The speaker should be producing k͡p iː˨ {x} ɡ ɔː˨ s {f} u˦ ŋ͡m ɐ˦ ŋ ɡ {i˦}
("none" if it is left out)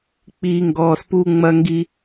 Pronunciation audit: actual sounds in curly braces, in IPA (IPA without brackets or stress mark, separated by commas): ŋ, p, i˦